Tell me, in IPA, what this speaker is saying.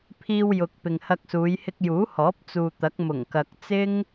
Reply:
pʰiː˧wjʊ˨k̚ pɪ˨ŋhɐ˧k̚suː˨˧j hɪ˧k̚juː˨˥hɔː˨˥p̚ t͡suː˨t̪ɐ˨˥k̚ mʊ˨˩ŋkɐ˨k̚t͡sɪ˥ŋ

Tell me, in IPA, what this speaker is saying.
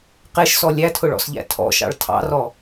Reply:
qeʃsɔ lʲætʰʊɭɔ̰sʎæ̰ tʰɔ̰ʃɑ̰ɭ tʰɑ̰rɔ

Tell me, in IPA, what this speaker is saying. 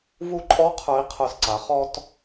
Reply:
vu˧ǃʼɔ˧˥ qʰə˞˧˥i̯qʰə˞˧sǀa˩˥ χɔ˧t

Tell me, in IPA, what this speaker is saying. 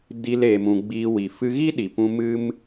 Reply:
di˧l eː˧mũ˧ ɡ͡biː˧wi˨ fɨ˧ ɣi˦ɗi˨pũ˧ mɨ˦m

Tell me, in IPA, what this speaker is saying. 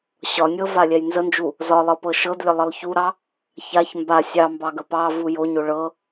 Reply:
ɕɒnʲɤ valʲɛjnzənd͡ʒu | zɒlˠɤ pɤʃɤdlʲə lˠəlˠçuɾɑ | çaç mba sʲɑmbɑ ɡəpɑvu joɲo ɭɤ

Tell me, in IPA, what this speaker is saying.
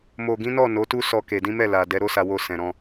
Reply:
mo˨ɡĩ˨˦nɔ˦˨ no˨˦tu˦ sɔ˧ ke˨dĩ˨˦mɛ˦˨ la˨ dɛ˨˦ɾo˦sa˧wo˧ sɛ̃˨ɾɔ̃˧

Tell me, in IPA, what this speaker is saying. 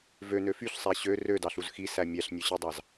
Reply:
vønø fyɬsˤæ ɕø rødɑɬuz xisæ mʲæɬnʲøɕidˤɑz

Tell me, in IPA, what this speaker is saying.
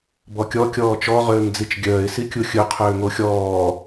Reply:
bɔkʲɔ kʲɔːt͡ʃɔ ʁøːŋd͡zit͡ʃɡʲœːɪ̯ sikʲuxʲɵ qʰøːŋoxʲɔː

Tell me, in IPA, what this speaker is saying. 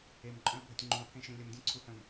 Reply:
emǃʼœ̃ə̯bʱətʲ ŋ͡ǃũə̯pʰẽʃẽ lʲəmdʲœ̃ǀʰuhœ̃m

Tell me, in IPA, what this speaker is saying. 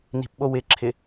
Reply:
ni̤pɓowɪǁʰɪ

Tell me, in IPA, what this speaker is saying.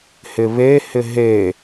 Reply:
hɪβe hɪɦe

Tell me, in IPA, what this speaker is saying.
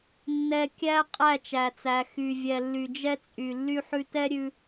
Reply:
nːɛ˨ kʲæ˦ qʼæ˦˨t͡ʃæ˨t͡sæ˨ xy˨vʲɛ˨ lːy˨d͡ʒɛ˧t͡sʼy˨ lːy˧ħʉ˧tɛ˦ ɾʲʉ˧

